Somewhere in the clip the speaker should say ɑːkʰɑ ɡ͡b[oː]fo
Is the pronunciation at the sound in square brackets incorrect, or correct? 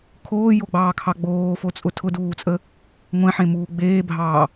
correct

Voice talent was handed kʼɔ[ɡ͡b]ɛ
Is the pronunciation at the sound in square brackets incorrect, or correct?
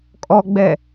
correct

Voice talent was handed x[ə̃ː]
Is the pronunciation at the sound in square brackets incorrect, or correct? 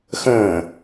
correct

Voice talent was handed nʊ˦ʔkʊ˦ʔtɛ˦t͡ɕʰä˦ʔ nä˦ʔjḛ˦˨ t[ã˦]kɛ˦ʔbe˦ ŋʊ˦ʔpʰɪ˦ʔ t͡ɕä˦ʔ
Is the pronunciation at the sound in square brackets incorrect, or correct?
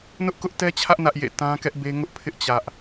correct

